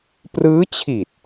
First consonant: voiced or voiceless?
voiceless